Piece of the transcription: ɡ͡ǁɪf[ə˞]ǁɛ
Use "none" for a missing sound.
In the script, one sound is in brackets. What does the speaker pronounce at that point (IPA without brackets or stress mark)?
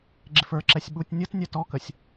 ə˞